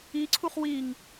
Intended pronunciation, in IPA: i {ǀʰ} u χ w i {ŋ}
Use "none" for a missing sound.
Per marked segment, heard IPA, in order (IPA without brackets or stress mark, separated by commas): ǀʰ, ŋ